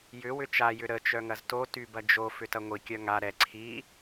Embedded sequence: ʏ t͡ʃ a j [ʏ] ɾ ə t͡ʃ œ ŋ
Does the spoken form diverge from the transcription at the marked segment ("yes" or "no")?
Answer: no